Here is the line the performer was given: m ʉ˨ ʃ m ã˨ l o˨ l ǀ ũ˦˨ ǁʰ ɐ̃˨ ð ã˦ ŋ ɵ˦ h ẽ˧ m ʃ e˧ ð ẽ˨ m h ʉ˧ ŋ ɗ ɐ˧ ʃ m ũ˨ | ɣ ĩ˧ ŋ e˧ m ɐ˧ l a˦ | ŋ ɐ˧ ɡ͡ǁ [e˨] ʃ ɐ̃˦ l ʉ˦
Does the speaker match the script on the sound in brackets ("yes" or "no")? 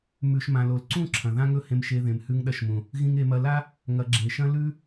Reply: yes